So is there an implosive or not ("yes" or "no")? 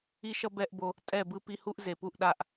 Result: yes